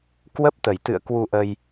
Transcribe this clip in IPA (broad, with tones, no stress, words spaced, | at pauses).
kwə˦˥p̚t̪ə˧˩jt̪ɨ̰˧˨ə̯ kwu˧ʔə˧j